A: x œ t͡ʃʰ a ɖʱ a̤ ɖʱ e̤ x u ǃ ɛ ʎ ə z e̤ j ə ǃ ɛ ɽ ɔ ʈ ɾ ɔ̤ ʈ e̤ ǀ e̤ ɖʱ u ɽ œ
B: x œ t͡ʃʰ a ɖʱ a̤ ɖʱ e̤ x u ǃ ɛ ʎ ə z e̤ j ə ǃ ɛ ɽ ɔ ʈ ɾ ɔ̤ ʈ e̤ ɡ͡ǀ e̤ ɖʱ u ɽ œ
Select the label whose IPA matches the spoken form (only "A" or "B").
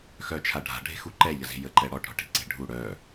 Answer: A